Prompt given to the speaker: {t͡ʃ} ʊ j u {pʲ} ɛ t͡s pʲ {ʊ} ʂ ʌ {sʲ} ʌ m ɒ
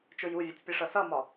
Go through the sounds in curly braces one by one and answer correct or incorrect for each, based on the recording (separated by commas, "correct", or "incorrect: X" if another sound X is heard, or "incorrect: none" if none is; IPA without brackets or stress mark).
correct, incorrect: vʲ, incorrect: ə, incorrect: s